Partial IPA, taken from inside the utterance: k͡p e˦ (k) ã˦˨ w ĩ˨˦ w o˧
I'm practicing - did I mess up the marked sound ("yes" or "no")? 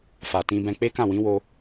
no